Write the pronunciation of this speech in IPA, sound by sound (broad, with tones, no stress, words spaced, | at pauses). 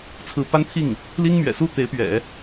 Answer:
t͡sʰɹ̩˧˥pa˥nt̪ʰi˥˩ŋ | li˥ŋmɥɛ̰˨˩su˥ t̪e˧˥ɪ̯pɥɛ̰˨˩˦